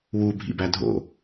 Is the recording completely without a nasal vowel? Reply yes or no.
yes